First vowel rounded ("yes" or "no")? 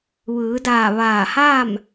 no